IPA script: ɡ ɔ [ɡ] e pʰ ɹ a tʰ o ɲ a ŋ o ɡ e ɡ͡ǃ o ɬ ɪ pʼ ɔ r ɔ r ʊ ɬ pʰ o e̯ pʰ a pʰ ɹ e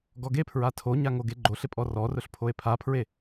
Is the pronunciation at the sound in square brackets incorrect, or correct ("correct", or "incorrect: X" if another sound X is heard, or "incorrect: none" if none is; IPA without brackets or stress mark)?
correct